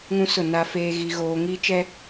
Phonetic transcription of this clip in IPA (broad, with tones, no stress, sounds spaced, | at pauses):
ŋ ũ˦ s ʊ˦˨ n a˦ f eː˦ ɣ i˦ ɣ oː˦ ŋ i˦ t͡ʃ ɛ˦